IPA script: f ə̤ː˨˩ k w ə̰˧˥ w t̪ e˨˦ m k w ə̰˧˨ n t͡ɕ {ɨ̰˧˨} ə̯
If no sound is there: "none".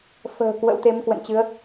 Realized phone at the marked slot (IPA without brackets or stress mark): ɨ˨˦